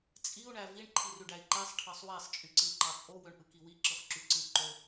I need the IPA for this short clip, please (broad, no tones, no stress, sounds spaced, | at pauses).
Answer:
t͡sʼ i u̯ ɳ æ v i ɳ ǃʰ i r y ɖ æ i̯ ǃ æ sˤ ʈʰ ɑ sˤ w æ sˤ t͡ʃʼ y ǀ ɯ i̯ ǃ ɑ t͡sʼ o w ø ɳ ʔ ɯ k i w i ǁ ɯ χ ǁ y ǀ ɯ ǃ o